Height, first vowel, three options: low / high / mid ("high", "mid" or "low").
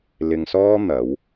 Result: high